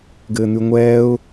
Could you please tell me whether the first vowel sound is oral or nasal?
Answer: oral